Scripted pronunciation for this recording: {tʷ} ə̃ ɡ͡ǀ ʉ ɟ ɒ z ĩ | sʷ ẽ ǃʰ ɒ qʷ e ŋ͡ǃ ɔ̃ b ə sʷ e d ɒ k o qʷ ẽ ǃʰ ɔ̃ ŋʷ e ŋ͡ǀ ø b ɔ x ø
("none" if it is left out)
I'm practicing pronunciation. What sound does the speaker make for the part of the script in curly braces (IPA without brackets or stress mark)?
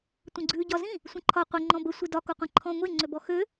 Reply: tʷ